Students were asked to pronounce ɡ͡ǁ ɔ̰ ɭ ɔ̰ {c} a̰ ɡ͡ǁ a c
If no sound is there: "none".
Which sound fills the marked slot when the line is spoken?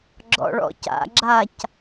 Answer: c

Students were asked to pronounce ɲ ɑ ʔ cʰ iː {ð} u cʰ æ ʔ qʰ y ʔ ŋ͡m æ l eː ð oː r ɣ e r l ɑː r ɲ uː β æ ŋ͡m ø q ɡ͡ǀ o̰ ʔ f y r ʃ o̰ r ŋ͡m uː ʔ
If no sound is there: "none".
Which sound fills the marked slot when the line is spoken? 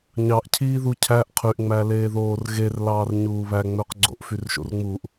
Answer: ð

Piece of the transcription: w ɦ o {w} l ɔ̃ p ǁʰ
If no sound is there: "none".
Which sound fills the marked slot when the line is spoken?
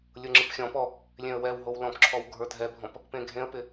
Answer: w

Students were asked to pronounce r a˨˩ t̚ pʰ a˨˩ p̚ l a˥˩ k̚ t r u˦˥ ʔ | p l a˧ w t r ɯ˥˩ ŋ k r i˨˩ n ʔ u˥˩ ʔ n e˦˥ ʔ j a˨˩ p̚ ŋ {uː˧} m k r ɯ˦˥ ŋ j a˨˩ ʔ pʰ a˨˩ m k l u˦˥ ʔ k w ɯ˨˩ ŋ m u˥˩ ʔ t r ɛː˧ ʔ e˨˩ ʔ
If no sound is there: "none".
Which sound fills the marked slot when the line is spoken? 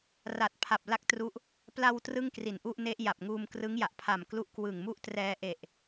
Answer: uː˧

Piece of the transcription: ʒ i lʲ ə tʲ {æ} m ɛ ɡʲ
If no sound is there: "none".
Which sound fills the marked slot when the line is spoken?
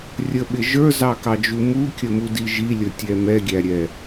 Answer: ɛ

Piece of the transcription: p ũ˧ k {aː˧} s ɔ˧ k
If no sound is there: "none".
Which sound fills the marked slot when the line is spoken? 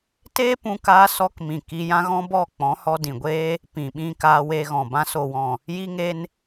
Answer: aː˧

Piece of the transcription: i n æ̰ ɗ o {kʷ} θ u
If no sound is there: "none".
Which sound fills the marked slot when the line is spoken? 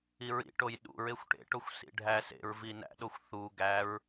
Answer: xʷ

